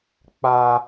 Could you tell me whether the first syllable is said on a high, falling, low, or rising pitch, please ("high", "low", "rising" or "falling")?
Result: high